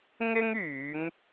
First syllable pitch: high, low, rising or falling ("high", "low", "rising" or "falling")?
high